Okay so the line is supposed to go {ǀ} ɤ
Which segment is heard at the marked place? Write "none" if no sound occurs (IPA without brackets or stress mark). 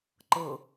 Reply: ǃ